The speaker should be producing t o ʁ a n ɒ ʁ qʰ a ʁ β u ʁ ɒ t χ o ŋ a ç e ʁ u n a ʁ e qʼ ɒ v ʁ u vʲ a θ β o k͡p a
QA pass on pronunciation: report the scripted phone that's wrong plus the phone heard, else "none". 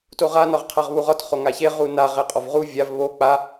θ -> v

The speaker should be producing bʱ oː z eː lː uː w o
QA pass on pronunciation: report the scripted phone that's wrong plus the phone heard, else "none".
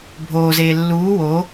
none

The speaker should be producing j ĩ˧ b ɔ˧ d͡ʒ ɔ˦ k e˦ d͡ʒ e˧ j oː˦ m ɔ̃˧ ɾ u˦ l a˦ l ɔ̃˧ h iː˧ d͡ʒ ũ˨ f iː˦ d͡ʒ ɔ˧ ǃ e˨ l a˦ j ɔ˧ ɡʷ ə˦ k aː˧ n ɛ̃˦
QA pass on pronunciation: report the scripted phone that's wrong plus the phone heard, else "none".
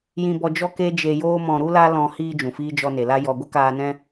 ǃ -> n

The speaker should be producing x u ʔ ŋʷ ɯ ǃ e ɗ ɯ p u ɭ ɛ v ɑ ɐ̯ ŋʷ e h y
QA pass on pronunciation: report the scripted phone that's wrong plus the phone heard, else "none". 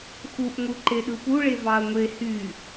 ɛ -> e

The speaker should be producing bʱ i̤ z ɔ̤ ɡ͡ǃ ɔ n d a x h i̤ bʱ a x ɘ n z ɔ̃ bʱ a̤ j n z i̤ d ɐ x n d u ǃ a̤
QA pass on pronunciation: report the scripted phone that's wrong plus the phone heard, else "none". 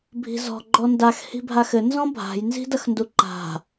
none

